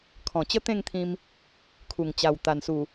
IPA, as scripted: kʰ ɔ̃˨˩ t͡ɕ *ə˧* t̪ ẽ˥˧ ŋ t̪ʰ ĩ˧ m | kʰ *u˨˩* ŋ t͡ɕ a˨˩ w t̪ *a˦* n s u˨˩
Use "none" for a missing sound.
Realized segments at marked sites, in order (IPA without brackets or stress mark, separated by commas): ə˦, u˨˩, a˨˩